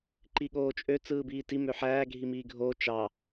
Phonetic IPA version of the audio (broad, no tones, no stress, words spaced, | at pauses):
ǃiɠoːt͡ʃʼø t͡sɯːbiːti møħæː ɡʱimiːɡʱoː t͡ʃɑ